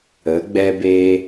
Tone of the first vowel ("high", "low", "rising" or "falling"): rising